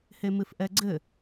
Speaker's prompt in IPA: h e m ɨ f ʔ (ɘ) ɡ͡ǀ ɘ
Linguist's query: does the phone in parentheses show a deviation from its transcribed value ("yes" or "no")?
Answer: yes